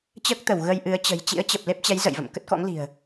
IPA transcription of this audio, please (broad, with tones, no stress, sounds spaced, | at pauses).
t͡ɕ əː˦˥ k̚ t̪ ə˧˩ w ɣ ə˧ j ʔ ɨ˨˦ ə̯ t͡ɕ ə̤˨˩ j t͡ɕ ḭ˧˥ ə̯ t͡ɕ ə˨˩ p̚ l e˦˥ p̚ t͡ɕ ɛ˨˦ j z ə̰˧˨ j v ə̰˧˨ m k ə˦˥ t̚ k ɔ̰˧˥ ŋ l i̤˨˩ ə̯